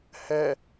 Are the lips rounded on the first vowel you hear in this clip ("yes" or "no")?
no